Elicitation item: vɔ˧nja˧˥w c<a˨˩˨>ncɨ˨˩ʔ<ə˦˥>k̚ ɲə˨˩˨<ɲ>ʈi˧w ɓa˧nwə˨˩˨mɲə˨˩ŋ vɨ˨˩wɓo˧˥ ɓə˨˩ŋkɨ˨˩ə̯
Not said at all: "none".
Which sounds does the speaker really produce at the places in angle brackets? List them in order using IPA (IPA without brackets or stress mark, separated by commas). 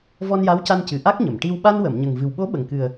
a˧, a˦˥, m